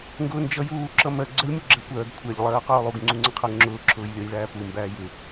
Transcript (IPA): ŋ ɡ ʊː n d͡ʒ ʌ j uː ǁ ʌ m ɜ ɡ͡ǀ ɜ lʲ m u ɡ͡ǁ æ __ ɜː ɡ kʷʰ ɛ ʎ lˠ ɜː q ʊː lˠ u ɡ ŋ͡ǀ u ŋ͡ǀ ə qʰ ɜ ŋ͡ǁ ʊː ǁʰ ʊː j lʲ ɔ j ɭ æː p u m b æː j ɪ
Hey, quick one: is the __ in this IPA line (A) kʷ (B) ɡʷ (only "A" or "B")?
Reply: A